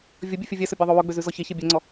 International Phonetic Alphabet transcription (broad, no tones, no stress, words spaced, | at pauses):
vʲɵbʲʉ fʲɵvʲɛsɵ bʲɑðˤowɵɡ͡bø zʉzɔçeçe bʲɛŋ͡ǀɔ